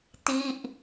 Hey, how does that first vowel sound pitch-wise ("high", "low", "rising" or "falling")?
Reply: falling